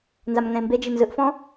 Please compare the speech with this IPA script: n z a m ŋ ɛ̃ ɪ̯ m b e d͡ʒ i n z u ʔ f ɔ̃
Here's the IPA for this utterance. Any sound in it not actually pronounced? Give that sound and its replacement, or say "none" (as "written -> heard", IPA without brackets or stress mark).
u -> ɯ